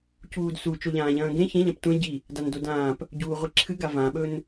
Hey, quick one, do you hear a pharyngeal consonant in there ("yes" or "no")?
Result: no